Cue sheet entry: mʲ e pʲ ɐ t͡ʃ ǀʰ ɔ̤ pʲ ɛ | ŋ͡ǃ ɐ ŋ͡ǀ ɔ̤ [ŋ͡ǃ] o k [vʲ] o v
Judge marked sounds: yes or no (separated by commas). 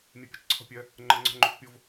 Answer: yes, no